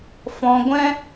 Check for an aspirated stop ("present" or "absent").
absent